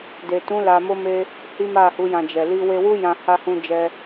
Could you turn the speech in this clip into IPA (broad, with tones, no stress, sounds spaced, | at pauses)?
d e˨ t ũ˨˦ l a˧ m o˦ m e˦ | h i˦ m a˦˨ h u˨˦ j ã˧ d͡ʒ ɛ˨ l i˧ w e˧ w u˦ j ã˧ h a˦ h ũ˦ d͡ʒ ɛ˦